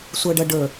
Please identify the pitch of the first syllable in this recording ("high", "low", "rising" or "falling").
low